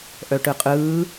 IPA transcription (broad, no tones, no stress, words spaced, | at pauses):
ʔœʈɯqʼɯː